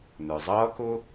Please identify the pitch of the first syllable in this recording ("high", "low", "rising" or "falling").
low